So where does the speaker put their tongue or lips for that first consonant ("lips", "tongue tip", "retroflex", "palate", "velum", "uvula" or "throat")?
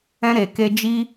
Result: tongue tip